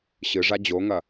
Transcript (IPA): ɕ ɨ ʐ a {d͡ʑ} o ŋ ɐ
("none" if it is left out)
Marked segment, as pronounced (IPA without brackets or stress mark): d͡ʑ